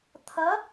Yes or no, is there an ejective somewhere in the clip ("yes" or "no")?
no